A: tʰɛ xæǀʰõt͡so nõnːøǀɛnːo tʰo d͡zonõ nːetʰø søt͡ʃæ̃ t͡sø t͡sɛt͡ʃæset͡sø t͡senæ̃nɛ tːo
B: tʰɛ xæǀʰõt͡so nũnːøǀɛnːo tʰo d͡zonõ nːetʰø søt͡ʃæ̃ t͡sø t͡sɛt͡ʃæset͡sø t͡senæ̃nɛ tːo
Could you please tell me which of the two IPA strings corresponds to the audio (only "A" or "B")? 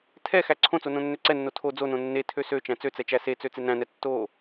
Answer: A